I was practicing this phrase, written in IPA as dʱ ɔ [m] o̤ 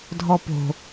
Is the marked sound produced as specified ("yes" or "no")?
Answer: no